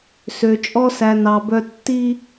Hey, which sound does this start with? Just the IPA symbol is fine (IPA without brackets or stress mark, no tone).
s